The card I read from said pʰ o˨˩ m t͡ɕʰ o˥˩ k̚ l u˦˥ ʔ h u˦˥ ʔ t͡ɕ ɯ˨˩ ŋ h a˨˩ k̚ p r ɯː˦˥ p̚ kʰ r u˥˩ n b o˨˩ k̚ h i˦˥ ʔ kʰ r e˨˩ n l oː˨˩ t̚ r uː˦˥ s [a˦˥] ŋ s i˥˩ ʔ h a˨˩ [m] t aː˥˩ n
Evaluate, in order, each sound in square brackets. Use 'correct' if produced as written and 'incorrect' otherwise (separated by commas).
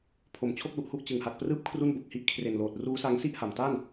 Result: correct, correct